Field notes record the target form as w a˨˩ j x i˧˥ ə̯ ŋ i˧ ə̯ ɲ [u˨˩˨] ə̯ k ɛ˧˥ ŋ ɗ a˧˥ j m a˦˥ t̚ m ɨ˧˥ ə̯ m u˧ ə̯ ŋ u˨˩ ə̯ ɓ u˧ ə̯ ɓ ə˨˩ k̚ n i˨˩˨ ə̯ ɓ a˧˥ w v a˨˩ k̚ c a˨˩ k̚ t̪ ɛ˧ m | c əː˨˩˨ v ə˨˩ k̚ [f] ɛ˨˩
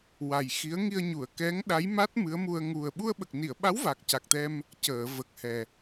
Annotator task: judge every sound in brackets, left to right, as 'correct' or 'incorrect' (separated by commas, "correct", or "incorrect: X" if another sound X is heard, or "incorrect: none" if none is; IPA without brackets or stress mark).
correct, incorrect: h